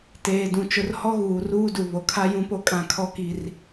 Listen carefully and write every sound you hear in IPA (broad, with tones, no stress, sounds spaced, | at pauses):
t eː˨ d ũ˨ t͡ʃ ʊ˨ r h ɔ˦ ɣ uː˨ r uː˦ d u˨ β o˨ kʰ a˦ j ũ˦ p o˦ kʼ ã˦˨ kʰ ɔ˦ k i˦ r